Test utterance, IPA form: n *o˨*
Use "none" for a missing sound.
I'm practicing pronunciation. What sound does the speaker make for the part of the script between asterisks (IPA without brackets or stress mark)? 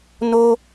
o˦